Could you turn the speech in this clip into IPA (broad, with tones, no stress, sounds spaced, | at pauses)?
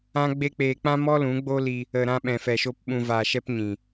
ã˦ ɡ͡b e˦ k͡p eː˧ k͡p ã˦ m ɔ˦ l ũ˨˦ ɡ͡b o˦ l i˧ | ə˨ ɾ ã˧ ɓ ɛ̃˨ f ɛ˨ ʃ o˧ p ɓ ũ˧ v aː˧ ʃ ɛ˦ p ɲ ĩ˨